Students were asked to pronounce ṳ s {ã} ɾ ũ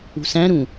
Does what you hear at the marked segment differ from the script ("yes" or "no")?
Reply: yes